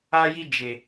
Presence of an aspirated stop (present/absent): absent